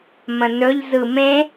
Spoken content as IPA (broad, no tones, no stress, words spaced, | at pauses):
mə̃nɵʎzɯ mẽ